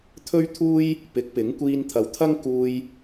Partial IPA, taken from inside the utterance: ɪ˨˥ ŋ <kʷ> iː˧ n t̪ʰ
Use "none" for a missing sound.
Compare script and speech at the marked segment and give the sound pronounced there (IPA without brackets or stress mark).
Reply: kʷ